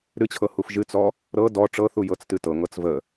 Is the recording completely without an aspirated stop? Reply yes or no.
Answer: no